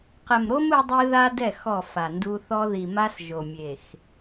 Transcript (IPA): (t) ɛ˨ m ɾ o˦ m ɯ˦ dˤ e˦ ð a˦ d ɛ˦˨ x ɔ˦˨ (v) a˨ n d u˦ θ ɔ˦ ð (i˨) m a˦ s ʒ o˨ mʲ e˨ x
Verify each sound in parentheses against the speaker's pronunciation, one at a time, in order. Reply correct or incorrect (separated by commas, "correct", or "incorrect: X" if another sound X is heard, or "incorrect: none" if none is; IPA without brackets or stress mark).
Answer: incorrect: q, incorrect: f, correct